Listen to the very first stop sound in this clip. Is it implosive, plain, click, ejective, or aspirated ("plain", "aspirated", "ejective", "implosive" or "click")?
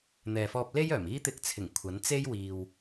plain